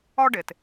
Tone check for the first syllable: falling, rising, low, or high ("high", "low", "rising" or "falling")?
high